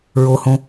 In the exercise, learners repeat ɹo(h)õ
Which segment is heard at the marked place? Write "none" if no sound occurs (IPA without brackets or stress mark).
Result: h